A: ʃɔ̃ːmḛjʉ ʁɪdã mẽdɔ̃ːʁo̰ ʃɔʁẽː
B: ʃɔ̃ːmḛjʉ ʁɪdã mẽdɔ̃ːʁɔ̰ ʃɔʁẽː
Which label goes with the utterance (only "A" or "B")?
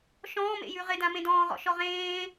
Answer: B